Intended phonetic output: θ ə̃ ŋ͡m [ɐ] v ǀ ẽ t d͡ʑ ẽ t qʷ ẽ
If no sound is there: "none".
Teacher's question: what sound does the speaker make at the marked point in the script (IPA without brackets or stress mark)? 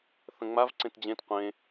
a